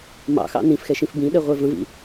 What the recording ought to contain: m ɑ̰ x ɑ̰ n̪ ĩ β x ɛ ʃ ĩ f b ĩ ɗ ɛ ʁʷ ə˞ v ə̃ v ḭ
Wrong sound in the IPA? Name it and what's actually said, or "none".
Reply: β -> f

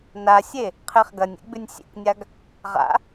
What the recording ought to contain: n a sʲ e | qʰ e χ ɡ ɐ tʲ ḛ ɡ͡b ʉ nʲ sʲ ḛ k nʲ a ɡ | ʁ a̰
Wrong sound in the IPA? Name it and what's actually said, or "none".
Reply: tʲ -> nʲ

